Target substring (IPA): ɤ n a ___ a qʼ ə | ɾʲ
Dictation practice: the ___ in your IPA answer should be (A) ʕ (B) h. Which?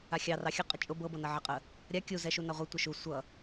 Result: A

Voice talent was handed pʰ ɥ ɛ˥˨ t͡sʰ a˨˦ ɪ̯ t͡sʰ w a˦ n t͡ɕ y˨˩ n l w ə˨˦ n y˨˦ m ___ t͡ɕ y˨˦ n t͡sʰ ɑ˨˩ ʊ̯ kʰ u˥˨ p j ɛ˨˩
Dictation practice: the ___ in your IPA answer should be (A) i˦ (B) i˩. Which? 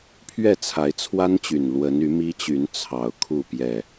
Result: A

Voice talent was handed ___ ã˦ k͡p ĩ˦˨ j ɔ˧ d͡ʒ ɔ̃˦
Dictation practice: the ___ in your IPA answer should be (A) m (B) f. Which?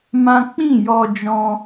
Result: A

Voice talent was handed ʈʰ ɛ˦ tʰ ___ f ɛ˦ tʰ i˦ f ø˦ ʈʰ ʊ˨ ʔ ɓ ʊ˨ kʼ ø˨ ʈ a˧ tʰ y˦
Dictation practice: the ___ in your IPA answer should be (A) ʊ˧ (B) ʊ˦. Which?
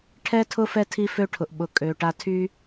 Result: B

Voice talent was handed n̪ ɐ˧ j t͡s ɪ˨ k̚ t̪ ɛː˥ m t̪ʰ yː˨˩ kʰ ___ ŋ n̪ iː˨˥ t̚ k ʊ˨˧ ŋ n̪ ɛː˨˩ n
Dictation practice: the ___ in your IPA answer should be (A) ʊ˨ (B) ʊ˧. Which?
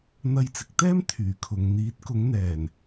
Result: A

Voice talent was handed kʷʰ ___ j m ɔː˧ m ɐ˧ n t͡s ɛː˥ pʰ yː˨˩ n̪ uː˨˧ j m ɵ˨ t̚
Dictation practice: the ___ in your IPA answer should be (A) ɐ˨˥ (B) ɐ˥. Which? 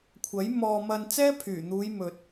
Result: A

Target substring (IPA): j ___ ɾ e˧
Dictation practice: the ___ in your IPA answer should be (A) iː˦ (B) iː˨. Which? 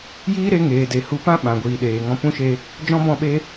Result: A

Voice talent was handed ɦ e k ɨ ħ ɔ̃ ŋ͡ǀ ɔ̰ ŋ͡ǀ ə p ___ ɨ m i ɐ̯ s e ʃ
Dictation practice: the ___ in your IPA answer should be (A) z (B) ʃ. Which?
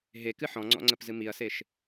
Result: A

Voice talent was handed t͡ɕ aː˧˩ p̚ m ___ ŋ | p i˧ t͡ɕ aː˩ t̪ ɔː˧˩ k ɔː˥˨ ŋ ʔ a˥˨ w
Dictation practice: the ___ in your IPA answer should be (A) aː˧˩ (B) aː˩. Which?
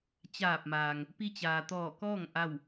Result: B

